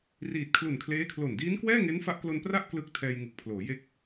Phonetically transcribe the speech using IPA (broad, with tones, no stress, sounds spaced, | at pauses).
r iː˨˩ t̚ kʰ l u˨˩ n kʰ l eː˦˥ kʰ l o˨˩ n d iː˦˥ n k w ɛː˥˩ ŋ e˦˥ n f a˦˥ ʔ k l o˧ n p r a˥˩ ʔ k l ɯ˦˥ k̚ tʰ ɛː˧ j ŋ ɯ˨˩ k̚ pʰ l oː˩˦ j e˥˩ k̚